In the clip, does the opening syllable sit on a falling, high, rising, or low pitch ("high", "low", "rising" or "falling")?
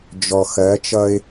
low